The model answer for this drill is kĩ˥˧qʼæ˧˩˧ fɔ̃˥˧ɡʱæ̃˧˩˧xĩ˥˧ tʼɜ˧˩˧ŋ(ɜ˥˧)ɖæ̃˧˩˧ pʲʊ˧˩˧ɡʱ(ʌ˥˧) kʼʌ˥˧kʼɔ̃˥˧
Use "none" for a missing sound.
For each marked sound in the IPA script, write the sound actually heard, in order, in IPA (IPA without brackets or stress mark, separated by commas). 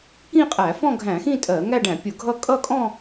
æ˥˧, ʌ˥˧